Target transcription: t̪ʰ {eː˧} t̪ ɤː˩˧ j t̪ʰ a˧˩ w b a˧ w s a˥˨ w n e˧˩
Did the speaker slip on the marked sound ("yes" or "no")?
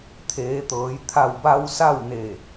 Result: yes